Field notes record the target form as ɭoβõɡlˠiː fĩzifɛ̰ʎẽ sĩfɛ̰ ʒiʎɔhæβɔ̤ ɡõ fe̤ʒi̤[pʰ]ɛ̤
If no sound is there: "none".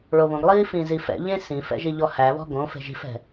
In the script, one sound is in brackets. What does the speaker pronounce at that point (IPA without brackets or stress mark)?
f